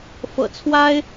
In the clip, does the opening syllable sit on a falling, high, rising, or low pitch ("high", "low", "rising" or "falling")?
low